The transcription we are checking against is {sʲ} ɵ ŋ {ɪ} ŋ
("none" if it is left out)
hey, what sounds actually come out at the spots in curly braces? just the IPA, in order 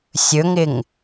sʲ, ɪ

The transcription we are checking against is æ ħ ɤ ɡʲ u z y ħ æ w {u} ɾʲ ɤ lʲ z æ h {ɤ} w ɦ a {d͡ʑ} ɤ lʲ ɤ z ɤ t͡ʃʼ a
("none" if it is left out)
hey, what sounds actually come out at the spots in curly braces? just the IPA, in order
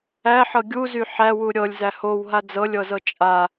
u, o, d͡z

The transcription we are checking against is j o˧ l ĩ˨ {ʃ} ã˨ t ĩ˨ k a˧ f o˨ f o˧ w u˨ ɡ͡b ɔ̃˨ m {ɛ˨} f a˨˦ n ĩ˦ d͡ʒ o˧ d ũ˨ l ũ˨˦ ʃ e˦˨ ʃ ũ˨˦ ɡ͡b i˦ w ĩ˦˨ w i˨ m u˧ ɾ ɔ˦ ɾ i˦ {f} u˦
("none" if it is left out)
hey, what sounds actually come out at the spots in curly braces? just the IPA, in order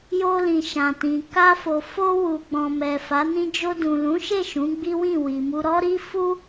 ʃ, ɛ˨, f

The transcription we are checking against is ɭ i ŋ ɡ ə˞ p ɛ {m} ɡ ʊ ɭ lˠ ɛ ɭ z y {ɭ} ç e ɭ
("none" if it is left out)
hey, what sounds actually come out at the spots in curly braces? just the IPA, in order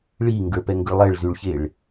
ŋ, ɭ

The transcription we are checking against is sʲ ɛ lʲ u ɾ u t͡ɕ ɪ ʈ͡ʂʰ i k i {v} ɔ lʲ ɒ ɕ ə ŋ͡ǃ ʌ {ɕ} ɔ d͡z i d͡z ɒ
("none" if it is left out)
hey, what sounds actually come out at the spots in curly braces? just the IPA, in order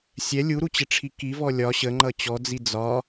v, t͡ɕ

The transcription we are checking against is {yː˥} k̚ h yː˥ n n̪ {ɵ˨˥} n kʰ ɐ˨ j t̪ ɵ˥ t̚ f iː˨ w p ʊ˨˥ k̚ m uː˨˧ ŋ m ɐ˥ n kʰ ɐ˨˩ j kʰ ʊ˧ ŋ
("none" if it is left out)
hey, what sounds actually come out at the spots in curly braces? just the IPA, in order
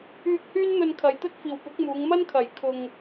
yː˧, ɵ˧

